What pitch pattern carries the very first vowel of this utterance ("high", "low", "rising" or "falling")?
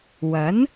rising